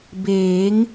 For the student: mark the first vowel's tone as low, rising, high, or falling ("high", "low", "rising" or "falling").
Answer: rising